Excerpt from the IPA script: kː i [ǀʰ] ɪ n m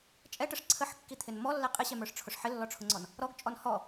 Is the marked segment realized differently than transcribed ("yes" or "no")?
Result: yes